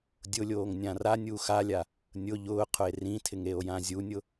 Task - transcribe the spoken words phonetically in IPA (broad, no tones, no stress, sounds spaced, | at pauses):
dʲ ʊ lʲ oː ŋ nʲ ã r a nʲ uː x a lʲ a | nʲ ʊ ʎ ʊː qʰ ʊ e̯ r ĩ tʰ ɪ ŋ e o̯ j ã zʲ u nʲ ʊ